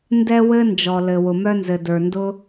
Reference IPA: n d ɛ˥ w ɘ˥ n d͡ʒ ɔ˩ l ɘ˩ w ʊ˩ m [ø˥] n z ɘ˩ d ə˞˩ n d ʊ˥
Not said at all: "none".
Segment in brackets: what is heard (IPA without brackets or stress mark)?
œ˥